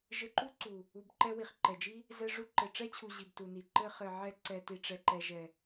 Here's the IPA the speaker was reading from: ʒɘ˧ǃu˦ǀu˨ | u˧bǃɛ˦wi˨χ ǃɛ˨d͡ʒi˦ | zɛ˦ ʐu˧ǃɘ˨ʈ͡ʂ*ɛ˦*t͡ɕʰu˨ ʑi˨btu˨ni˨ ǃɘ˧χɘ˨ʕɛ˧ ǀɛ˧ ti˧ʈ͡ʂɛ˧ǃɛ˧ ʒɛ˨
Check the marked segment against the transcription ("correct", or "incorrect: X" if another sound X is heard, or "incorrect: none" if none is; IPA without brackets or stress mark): correct